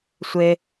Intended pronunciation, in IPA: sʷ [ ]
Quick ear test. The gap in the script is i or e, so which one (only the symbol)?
e